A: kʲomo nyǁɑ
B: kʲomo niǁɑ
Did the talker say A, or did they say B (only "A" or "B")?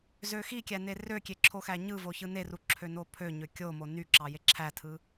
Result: A